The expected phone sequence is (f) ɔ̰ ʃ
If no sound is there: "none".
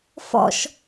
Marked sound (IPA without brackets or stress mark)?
f